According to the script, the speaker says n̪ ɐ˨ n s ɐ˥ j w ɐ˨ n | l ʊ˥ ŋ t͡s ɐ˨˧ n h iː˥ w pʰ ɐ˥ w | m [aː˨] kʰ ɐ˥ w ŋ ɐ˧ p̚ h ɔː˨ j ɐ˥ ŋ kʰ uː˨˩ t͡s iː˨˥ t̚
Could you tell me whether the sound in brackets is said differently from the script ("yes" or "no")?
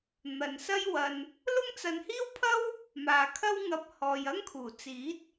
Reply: no